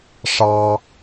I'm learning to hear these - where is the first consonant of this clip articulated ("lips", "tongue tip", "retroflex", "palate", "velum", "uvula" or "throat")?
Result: retroflex